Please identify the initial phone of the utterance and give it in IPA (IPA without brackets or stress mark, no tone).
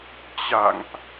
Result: t͡ɕ